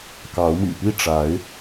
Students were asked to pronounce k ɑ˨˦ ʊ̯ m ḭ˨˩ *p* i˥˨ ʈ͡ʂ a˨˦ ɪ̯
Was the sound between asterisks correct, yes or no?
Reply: yes